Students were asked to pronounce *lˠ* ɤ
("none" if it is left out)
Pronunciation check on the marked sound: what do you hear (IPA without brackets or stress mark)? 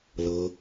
l